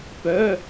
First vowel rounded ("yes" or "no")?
yes